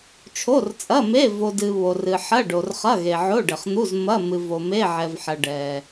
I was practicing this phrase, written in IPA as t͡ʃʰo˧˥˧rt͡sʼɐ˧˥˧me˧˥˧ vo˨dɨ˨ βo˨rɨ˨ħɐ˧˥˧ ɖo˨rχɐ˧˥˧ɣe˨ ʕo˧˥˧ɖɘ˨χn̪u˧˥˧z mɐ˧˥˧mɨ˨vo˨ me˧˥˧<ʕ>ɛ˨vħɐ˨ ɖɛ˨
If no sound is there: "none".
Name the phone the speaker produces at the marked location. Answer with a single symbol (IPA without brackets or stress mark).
ʕ